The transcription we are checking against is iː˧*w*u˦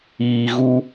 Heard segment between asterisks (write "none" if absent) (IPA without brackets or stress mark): ɣ